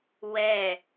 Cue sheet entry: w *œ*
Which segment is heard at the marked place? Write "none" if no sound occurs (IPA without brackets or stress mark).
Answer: ɛ